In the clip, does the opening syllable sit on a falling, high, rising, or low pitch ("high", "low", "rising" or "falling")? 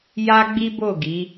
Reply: high